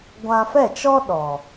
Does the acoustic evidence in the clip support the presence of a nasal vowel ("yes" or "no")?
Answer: yes